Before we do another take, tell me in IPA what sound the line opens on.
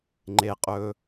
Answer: ŋ͡ǃ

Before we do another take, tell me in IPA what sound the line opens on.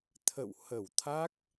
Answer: t̪ʰ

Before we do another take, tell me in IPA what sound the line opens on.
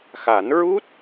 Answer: x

